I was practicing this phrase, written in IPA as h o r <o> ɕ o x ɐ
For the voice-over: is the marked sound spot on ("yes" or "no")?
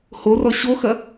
no